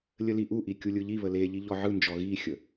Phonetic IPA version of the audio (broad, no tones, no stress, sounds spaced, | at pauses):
lʲ ə l i ʔ u ʔ i kʲ u lʲ ɯ ʎ i β ə l e ʎ i ʎ ɔ ʕ ɯ n d͡ʒ ɔ ɣ i xʲ ə